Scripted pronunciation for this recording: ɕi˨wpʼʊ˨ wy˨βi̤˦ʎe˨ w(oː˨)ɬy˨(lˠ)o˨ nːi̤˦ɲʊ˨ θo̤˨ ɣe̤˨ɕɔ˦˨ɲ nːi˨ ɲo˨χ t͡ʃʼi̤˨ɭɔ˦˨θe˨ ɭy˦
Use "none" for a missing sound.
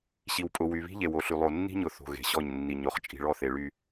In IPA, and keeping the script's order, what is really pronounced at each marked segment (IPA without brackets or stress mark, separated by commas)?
o˨, lˠ